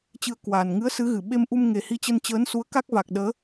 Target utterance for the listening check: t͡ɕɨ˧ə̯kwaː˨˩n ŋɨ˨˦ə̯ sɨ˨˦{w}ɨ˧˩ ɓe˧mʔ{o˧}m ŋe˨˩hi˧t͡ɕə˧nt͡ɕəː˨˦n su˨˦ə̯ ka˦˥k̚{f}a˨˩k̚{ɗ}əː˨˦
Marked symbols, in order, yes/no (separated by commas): no, no, no, yes